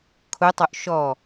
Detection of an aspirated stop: present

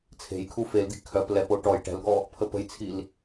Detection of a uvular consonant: absent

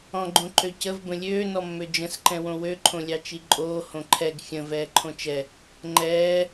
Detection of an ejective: present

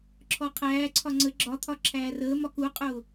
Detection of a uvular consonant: present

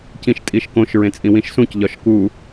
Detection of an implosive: absent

